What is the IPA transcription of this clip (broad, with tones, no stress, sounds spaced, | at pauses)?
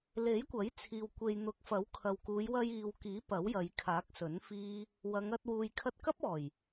l e˨˥ j kʷ ɐ˨˥ j t͡sʰ iː˨ w kʷ e˨ j n̪ ʊ˨˥ k̚ f ɐ˨˥ w kʰ ɐ˨ w k uː˨˧ j w ɐ˧ j iː˨ w k iː˨˥ p ɐ˨˥ w j ɐ˨˧ j kʰ aː˨˥ k̚ s ɵ˨˥ n f iː˥ | w ɐ˨˧ ŋ ɐ˧ t̚ w uː˨ j kʰ ɐ˧ t̚ k ɐ˥ p̚ ɔː˨˩ j